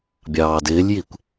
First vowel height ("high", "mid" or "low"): low